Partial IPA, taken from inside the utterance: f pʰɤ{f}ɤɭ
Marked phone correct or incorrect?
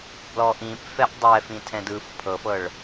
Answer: correct